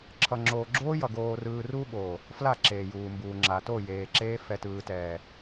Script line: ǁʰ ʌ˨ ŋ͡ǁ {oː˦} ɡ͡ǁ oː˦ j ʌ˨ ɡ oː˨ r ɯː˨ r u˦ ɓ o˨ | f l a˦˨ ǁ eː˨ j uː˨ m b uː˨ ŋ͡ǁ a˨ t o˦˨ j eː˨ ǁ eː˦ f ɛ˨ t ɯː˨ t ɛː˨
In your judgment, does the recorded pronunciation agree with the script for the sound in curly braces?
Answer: no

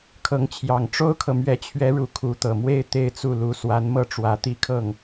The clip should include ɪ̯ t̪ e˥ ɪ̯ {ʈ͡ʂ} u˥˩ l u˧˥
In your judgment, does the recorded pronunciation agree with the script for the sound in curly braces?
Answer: no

